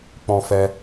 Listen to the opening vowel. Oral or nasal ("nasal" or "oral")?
nasal